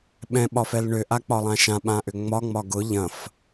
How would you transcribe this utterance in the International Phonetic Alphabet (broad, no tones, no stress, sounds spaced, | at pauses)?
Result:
ɓ ɛ̃ ɓ ɒ f ɛ l ɳ ʏ ʔ a k͡p ɒ lˠ ã ʃ ã ɓ ã ʔ ʏ ŋ͡m ɒ ŋ͡m ɒ ɡ ʊ ʎ ɐ̃ f